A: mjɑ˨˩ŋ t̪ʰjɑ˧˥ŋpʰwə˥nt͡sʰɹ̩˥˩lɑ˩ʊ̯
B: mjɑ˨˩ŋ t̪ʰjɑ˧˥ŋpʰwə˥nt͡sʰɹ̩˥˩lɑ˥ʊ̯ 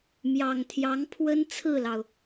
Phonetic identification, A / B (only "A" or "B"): A